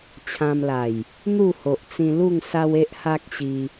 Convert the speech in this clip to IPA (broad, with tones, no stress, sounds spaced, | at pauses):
t͡ɕʰ ã˧ m l a˨˩ j | n̪ u˥˧ h o˨ ʔ t͡s ĩ˧ l u˥˧ ŋ s a˦ w e˦ ʔ h a˦ k̚ ɕ i˧